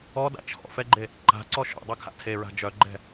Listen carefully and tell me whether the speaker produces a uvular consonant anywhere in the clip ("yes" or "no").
no